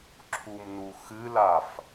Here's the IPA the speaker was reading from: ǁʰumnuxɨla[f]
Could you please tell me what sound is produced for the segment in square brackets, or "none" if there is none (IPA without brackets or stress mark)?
f